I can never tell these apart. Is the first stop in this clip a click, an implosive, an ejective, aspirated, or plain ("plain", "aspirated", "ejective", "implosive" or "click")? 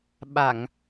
implosive